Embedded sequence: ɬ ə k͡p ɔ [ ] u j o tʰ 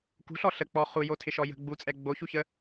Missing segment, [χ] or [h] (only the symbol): χ